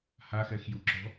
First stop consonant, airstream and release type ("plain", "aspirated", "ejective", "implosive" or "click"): click